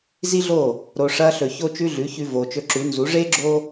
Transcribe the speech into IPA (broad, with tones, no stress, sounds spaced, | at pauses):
z i˦ ɮ o˦˨ | ɾ o˨ ʂ ɐː˧ ɬ ɵ˨ ç o˦ t͡ʃ ʉ˦ ɮ ʉ˨˦ ç ʉ˧ v oː˨ t͡ʃ ɵ˧ ǁ ʉ˨˦ n z u˨˦ ʐ eː˦ ɡ͡ǁ oː˦